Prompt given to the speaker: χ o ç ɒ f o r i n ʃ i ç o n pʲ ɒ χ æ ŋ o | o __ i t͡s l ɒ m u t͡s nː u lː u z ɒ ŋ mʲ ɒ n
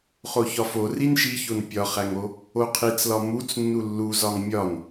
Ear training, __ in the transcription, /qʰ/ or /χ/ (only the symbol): qʰ